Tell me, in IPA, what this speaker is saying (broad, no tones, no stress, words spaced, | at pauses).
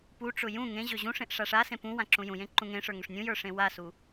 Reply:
puʈ͡ʂʊ jũ ŋẽ ʑøʑũʂẽʔ ʂaʂasẽ pũ wãǁũjũjẽ ǃũŋẽʂə˞ ŋʊʂnʲũjə˞ ʂẽwasu